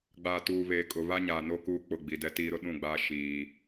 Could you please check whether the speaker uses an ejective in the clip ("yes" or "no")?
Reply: yes